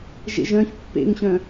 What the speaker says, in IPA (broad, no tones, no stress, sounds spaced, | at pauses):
ʒ ḛ ʒ œ̃ ç pː ḛ ŋ ɕ œ̃